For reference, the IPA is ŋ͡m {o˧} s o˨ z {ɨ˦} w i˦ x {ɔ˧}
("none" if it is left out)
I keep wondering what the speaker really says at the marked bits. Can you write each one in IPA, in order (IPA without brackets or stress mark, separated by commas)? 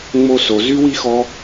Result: o˦, y˦, ɔ˧